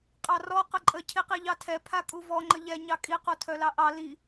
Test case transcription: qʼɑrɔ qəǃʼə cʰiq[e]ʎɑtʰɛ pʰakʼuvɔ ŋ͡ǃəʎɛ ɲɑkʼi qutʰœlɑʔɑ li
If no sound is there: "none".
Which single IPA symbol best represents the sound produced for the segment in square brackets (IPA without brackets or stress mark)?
i